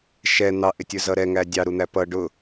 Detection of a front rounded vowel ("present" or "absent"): absent